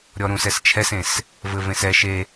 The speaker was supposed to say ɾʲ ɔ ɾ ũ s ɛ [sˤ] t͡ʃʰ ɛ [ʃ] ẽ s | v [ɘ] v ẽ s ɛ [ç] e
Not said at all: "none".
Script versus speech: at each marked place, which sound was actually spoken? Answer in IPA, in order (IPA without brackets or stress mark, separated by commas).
s, s, ɘ, ʃ